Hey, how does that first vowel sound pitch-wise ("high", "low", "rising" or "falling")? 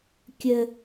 high